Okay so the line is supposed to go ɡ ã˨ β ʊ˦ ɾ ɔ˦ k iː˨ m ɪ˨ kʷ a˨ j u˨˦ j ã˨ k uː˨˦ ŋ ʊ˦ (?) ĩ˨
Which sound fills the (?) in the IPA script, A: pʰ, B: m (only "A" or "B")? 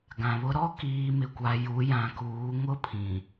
A